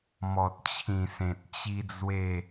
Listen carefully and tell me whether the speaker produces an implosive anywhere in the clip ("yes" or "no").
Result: no